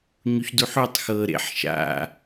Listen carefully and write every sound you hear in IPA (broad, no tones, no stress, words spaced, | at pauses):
ɲuçduħutˤ xɤ ɾḛħ ʃa̰